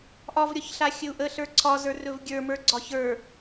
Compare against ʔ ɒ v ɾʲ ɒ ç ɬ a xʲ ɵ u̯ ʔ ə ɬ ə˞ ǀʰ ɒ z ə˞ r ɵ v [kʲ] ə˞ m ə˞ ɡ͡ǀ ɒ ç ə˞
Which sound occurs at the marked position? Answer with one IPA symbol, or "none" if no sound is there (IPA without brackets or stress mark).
ɡʲ